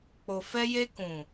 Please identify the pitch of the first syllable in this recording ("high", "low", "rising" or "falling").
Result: low